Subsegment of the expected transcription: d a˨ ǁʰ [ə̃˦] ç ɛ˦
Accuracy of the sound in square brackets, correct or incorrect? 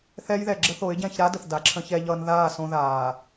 correct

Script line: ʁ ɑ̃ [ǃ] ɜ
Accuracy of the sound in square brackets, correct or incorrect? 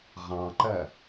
correct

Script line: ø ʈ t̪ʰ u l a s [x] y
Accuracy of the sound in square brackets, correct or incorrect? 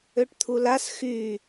correct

